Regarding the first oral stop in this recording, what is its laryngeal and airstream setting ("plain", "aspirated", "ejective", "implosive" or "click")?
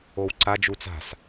click